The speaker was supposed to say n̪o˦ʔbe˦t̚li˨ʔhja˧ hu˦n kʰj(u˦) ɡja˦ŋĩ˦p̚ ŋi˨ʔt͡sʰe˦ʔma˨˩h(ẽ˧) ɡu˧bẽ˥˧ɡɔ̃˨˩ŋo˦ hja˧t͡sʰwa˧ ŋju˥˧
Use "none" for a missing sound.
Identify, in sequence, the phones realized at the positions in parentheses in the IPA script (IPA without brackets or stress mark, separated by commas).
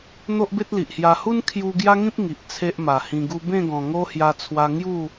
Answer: u˧, ĩ˧